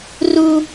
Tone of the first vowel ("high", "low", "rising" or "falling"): high